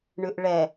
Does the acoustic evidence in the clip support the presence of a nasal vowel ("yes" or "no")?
no